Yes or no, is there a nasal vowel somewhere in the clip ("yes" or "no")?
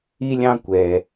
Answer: yes